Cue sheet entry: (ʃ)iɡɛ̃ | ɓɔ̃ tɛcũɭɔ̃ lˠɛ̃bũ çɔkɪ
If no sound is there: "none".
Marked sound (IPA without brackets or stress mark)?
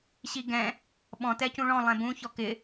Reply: ɕ